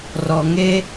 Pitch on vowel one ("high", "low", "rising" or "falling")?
low